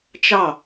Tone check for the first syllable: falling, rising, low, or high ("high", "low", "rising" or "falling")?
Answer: falling